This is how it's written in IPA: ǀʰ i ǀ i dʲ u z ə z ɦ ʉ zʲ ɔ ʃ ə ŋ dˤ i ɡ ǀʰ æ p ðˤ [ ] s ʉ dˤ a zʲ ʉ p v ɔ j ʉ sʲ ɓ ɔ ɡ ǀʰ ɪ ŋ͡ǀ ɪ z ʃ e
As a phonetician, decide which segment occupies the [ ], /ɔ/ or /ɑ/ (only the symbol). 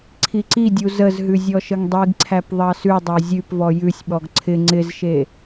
ɑ